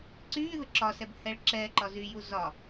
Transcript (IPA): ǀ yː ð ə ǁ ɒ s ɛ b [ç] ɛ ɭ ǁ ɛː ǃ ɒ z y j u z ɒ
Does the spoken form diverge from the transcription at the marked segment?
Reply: yes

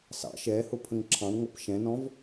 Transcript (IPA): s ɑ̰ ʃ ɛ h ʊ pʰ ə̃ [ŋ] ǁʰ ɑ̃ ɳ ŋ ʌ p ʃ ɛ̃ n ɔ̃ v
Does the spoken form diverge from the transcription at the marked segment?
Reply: no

